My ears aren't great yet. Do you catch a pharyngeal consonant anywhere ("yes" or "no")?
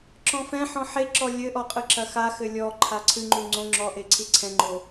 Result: yes